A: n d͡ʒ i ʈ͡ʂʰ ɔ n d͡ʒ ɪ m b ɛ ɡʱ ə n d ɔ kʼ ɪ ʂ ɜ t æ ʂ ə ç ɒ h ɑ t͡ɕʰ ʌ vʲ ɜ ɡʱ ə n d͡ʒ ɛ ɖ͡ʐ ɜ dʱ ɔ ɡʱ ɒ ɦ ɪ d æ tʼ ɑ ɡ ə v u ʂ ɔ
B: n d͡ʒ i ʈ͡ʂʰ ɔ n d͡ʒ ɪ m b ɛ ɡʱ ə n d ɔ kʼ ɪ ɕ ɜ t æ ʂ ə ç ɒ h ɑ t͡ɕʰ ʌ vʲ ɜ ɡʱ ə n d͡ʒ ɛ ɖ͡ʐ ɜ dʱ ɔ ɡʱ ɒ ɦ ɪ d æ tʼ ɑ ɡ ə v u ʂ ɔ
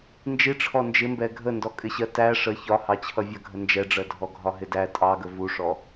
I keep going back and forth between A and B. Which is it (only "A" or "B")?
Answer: B